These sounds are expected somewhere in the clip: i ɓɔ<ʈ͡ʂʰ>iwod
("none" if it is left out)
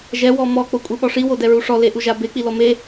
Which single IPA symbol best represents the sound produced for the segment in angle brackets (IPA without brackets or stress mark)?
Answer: ʂ